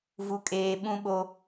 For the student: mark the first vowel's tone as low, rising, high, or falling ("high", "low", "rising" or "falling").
high